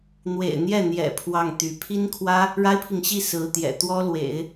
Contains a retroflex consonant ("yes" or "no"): yes